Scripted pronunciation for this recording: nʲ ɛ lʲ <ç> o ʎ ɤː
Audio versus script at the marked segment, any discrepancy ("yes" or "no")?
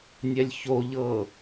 no